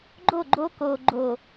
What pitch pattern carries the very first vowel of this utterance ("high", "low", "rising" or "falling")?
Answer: falling